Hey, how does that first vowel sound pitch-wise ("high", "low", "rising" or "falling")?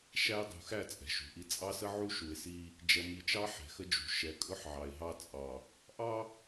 high